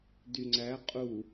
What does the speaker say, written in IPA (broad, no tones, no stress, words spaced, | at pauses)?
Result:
dyŋ͡ǀæ qʼu